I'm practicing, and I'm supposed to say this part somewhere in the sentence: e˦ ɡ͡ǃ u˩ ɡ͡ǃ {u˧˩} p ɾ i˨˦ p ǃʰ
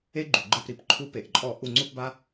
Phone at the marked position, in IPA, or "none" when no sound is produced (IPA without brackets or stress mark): ɯ˧˩